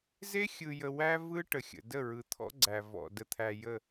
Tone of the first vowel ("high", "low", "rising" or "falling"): high